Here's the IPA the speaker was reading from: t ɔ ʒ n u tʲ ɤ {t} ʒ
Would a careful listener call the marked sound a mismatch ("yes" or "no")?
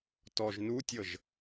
yes